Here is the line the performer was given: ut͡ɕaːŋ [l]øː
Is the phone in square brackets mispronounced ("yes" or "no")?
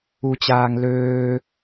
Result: no